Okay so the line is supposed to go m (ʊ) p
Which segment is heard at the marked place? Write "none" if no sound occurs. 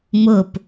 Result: ʊ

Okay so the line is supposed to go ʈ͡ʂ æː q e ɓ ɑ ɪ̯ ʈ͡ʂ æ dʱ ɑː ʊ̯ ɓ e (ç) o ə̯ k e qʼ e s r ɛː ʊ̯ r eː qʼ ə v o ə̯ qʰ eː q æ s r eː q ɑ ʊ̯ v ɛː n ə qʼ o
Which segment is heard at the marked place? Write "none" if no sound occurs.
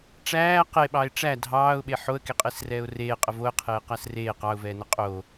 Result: ħ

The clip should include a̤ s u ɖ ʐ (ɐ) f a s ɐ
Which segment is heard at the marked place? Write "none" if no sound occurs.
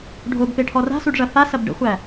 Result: ɐ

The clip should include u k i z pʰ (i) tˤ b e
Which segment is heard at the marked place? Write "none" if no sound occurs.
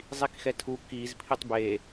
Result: i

